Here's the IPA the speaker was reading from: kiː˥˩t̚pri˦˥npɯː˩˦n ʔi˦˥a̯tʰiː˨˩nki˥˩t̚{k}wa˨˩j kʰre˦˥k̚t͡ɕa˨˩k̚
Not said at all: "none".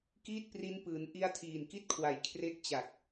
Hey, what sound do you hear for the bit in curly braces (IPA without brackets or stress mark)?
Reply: kʰ